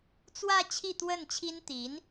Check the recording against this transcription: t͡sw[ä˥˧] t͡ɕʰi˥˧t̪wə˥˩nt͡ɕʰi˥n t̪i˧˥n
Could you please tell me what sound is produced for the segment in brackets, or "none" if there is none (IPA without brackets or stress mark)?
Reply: ä˥˧